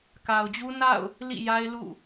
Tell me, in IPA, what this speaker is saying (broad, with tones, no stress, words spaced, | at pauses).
ka˨ʊ̯d͡ʑu˦ na̰˦˨ʊ̯ | lḭ˦˨ja˦ɪ̯lṵ˦˨